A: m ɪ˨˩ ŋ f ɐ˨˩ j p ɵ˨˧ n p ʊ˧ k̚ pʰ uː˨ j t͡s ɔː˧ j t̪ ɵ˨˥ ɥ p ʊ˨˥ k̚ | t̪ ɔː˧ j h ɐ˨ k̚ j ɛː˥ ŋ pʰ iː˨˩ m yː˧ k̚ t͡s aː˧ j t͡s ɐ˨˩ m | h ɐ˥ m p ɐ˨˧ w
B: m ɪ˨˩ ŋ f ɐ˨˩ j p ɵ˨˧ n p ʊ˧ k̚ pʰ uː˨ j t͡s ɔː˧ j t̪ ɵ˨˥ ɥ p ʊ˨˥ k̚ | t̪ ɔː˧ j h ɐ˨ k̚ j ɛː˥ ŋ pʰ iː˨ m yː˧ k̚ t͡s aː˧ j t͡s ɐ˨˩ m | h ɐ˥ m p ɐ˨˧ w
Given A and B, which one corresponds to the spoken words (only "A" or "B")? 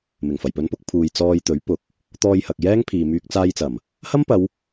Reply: B